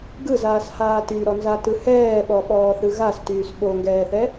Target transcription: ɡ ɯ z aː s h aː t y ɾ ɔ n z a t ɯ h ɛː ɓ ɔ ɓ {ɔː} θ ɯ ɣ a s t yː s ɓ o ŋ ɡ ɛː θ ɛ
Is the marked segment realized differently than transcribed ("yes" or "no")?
no